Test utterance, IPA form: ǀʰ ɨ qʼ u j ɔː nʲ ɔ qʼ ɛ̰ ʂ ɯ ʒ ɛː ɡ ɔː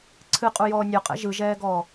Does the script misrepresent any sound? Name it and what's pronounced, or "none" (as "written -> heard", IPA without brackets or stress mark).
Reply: ʂ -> ʒ